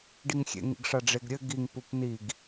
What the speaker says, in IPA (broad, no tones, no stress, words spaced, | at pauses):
ɖiŋxʲḛ ŋḭɡʂaɖ͡ʐeɡɾʲɘ ɡiŋ pupniɡ